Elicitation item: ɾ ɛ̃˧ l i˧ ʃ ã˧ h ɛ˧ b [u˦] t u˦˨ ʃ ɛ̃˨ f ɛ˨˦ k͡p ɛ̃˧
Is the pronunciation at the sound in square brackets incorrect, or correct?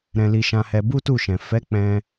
correct